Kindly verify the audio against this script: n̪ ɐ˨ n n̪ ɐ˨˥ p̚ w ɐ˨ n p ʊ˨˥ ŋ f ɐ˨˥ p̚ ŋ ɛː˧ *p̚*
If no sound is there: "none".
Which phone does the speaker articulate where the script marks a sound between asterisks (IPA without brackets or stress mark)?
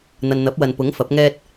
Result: t̚